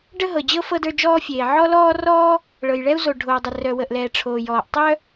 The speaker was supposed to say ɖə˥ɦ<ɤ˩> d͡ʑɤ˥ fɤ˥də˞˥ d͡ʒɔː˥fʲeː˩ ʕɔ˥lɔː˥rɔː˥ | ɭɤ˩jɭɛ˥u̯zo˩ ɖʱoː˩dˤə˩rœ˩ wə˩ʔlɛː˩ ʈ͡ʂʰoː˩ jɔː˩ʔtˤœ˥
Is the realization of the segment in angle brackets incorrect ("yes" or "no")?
no